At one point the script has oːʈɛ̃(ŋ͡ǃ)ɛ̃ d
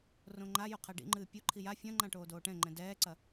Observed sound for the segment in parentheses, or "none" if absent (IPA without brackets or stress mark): ŋ͡ǃ